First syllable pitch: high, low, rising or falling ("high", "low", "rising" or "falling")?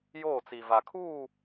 falling